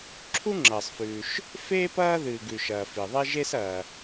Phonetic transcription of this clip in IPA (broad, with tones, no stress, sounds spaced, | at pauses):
ǁʰ u˥ ŋ͡ǁ ɐː˩ sˤ f ʉː˩ ʃ | f eː˥ p ɐː˥ ð ɨː˩ ɡ ʉ˩ ʃ ɐː˩ f i˩ ðˤ e˥ ʒ e˥ s ɐː˩